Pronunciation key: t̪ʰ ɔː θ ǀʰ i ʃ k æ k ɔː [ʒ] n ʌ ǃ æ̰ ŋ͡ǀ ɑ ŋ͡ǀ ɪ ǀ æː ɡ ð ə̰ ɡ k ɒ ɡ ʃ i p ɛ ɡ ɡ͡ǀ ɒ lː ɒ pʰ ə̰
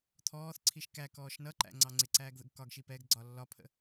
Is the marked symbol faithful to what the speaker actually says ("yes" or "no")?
no